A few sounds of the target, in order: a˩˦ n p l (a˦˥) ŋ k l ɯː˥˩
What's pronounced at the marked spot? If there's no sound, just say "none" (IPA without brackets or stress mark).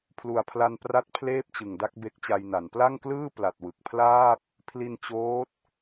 a˥˩